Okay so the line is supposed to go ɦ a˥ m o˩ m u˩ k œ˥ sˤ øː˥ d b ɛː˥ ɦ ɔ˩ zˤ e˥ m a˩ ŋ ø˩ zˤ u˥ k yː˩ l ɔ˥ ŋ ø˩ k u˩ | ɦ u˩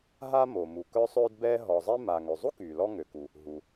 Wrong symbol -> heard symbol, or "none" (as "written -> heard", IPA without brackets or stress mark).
none